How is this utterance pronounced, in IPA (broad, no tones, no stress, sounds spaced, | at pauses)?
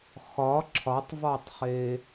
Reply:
x ɒ ǁʰ ɒ tˤ v ɒ tˤ χ e